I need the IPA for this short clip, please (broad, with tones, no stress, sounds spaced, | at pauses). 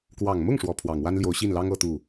k w ɑ˨˩ ŋ m ʊ˥˩ ŋ ʂ w ɔ˧˥ pʰ w ɑ˨˩ ŋ w a˥ n l j o˧˥ ʊ̯ ɕ i˥˩ n l ɑ˥ ŋ ɤ˥ t̪ u˥˩